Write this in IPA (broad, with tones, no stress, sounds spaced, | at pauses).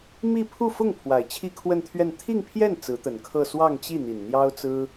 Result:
m i˥˧ pʰ u˥˧ f ʊ˥˩ ŋ pʰ w a˨˩ ɪ̯ t͡ɕʰ i˥˧ kʰ w ə˥˧ n t̪ʰ ɥ ɛ˥˧ n t̪ʰ i˥˧ ŋ pʰ j ɛ˥˩ n t͡s ɹ̩˧˥ t̪ ə˨˩ n kʰ ɤ˥˧ s w ɑ˥˧ ŋ t͡ɕ i˥˩ n̪ i˨˩ n n̪ j ɑ˥ ʊ̯ t͡s ɹ̩˥